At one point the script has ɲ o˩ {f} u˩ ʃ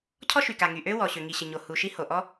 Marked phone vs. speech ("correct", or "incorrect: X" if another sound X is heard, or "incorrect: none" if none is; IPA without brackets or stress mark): incorrect: h